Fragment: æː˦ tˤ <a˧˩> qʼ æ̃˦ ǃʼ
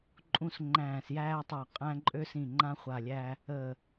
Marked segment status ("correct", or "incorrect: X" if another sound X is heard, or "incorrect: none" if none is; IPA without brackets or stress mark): correct